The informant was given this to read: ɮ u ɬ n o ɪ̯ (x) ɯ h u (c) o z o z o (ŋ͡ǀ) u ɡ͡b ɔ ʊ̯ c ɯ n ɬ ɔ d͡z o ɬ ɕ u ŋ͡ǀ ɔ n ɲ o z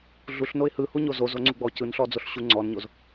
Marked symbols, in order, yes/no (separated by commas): no, no, yes